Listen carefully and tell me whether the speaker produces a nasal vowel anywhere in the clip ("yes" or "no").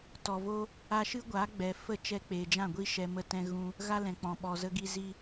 yes